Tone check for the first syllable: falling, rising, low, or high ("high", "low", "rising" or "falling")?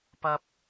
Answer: high